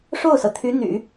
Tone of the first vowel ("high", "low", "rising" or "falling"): falling